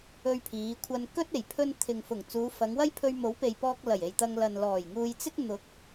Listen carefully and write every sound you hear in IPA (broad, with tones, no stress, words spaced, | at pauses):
ɵ˧ɥpʰiː˨˧kʷʰɐ˧n kɵ˥t̚e˨˩j pʰɵ˥n t̪ʰɪ˨ŋfʊ˨˩ŋ t͡suː˨˧fɐ˨˧ŋwɐ˥jpʰɵ˧ɥ mo˨˥wpe˨j pɔː˧k̚ lɐ˨˩je˨j t̪ɐ˧ŋ lɐ˨n lɔː˨˩jŋuː˧jt͡sɪ˥k̚ n̪ʊ˨˥k̚